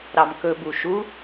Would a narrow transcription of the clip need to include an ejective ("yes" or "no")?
no